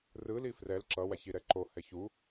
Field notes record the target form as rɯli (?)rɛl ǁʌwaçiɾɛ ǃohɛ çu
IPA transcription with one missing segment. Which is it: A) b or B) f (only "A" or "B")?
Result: B